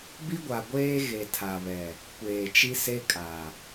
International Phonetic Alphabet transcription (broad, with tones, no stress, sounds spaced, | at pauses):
b i˦ ɡʷ a˨ ɡʷ eː˦ ɣ e˨ tʰ a˨ β ɛ˨ | kʷ eː˨ t͡ʃ i˦ s e˦ kʼ a˨